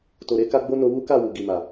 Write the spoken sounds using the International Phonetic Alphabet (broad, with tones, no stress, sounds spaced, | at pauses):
t o˨ ɾ e˨˦ k a˧ ɡ͡b o˦ n o˧ w u˦ k a˦˨ w u˨ ɡ i˨ m a˨